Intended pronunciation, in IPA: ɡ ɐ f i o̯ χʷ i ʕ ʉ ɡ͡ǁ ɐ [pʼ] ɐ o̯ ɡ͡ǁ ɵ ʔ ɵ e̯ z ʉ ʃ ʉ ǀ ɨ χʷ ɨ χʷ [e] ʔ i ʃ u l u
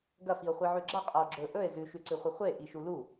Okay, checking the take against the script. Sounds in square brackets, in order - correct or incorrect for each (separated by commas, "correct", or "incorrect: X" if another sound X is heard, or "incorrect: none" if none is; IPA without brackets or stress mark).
incorrect: qʼ, correct